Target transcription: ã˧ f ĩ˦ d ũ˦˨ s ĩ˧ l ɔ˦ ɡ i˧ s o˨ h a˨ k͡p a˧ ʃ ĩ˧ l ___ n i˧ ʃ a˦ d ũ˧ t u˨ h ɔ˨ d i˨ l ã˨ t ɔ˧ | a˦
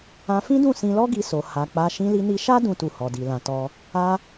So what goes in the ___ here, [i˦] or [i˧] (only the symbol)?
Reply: i˧